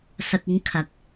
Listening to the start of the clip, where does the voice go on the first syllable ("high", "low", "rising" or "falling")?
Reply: low